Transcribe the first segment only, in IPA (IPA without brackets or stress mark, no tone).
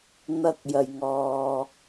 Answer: n̪